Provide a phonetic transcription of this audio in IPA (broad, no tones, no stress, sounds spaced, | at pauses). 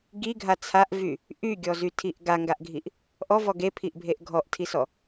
ɡ i ɡʱ a t͡sʰ a ʔ v y | ʔ y ɡʲ ɔ z y tʰ i ʔ ɡ a ŋ ɡ a ʔ ɡʱ i ʔ | ʔ ɔ v ɔ ɡ e pʰ i ʔ bʱ e ʔ ɡʱ ɔ ʔ tʰ i s ɔ